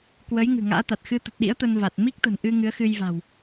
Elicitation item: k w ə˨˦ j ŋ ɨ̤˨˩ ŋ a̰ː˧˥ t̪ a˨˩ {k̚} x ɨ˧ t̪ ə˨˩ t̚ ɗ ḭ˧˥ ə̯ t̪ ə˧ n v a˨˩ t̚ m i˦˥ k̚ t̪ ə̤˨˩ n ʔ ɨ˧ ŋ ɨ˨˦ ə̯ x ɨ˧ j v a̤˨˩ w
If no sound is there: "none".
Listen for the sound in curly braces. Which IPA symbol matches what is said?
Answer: t̚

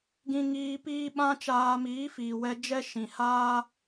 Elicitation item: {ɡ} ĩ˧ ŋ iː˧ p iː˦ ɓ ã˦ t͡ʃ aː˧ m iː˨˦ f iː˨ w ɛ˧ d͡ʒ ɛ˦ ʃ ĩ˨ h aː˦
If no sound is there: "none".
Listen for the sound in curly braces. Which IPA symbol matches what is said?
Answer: ɡ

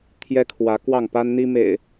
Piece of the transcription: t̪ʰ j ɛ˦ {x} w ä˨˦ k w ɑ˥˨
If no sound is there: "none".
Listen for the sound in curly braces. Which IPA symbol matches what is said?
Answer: kʰ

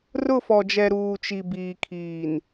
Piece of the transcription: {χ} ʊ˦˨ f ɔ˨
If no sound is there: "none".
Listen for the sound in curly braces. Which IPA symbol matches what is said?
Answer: r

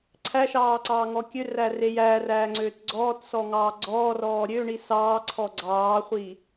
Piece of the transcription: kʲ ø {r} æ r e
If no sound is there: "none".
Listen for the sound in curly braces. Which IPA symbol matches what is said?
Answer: r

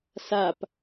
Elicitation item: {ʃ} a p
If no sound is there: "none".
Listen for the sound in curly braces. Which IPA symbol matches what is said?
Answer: s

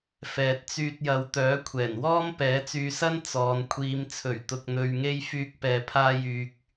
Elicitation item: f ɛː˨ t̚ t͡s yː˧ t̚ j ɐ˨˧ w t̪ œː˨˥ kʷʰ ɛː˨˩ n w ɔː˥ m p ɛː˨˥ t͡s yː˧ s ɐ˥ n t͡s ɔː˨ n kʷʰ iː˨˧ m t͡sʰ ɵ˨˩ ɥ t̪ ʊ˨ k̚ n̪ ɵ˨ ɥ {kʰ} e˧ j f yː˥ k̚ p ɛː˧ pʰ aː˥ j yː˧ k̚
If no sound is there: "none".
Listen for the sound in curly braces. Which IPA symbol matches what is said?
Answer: ŋ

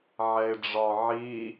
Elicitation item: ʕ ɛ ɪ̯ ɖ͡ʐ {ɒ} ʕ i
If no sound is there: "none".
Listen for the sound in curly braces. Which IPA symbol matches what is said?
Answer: ɒ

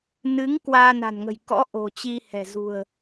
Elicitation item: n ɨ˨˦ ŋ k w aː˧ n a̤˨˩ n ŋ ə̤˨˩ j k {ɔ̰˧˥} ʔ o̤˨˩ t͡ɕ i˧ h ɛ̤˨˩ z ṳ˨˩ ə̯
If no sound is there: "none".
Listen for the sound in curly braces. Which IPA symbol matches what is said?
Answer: ɔ̰˧˥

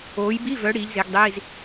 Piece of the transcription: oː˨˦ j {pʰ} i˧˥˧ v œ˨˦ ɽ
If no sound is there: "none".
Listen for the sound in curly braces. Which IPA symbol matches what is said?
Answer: b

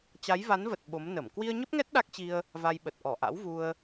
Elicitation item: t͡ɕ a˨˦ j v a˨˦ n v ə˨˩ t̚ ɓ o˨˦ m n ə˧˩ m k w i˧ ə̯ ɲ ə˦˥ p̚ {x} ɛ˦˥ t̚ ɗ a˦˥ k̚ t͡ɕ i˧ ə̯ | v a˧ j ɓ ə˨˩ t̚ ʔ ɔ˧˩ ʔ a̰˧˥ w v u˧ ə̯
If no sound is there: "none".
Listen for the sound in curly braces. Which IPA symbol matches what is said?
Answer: ŋ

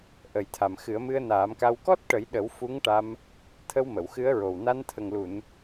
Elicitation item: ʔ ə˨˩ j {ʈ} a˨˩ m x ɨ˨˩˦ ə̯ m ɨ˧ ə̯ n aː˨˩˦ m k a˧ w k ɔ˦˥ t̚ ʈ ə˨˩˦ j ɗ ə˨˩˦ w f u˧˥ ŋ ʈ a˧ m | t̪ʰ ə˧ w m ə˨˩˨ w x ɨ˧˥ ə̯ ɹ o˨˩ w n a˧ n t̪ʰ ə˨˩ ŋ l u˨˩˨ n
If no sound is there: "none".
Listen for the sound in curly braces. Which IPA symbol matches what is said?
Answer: t̪ʰ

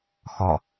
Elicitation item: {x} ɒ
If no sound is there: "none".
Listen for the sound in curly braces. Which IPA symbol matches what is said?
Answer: x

